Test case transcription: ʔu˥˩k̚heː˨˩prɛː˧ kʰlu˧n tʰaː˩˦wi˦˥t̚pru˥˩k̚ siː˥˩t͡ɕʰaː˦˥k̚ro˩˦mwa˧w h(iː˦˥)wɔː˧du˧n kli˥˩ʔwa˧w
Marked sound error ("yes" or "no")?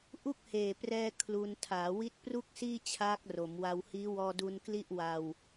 no